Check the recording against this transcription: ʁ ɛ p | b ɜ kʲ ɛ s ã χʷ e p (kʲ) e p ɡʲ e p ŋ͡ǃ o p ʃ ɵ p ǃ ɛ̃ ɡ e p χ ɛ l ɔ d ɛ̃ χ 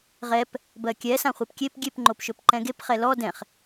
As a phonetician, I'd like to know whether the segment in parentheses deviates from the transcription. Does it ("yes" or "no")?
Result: no